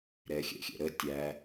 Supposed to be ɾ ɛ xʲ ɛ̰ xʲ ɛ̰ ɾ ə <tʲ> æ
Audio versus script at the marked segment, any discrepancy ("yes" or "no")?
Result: no